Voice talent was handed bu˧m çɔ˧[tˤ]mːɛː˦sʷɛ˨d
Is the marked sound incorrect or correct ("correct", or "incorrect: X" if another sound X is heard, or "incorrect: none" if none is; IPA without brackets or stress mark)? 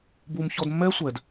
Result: incorrect: d